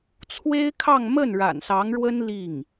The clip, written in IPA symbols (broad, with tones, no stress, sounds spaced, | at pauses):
t͡sʰ w e˥ ɪ̯ kʰ ɑ˥˧ ŋ m ə˥˩ n ɻ a̰˨˩ n s ɑ˧˥ ŋ ɻ w ə˥ n l i˥˩ ŋ